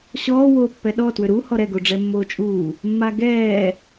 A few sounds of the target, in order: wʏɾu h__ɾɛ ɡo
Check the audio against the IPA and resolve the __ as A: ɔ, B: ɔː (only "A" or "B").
A